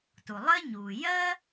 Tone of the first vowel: low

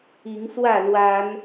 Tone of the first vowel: rising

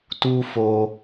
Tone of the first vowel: high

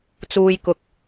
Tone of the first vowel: low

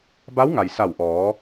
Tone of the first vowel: rising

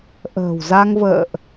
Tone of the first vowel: low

